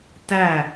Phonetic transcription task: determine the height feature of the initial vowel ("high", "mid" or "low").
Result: low